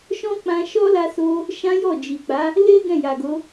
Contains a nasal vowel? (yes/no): yes